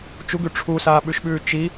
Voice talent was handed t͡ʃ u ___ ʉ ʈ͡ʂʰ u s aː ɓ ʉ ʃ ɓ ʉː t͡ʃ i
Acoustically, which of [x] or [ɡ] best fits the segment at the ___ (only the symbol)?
ɡ